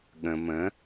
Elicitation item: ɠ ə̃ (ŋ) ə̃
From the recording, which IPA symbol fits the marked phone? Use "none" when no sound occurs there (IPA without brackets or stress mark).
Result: m